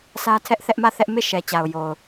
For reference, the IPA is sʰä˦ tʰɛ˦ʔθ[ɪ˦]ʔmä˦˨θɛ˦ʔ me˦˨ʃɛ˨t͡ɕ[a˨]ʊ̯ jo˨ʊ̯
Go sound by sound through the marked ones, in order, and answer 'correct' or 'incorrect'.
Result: incorrect: ɛ˦, correct

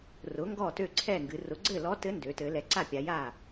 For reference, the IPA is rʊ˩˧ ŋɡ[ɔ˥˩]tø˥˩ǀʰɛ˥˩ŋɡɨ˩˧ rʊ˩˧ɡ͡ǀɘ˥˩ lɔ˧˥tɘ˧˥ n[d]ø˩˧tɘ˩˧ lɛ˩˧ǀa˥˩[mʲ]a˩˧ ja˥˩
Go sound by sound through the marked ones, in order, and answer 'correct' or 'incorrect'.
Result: correct, correct, incorrect: pʲ

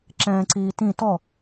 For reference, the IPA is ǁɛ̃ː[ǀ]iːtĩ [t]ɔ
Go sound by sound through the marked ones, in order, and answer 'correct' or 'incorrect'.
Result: correct, correct

